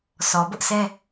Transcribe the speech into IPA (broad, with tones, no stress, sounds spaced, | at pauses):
s ɔ˨ b ʊ˦ ʔ s ɛ˦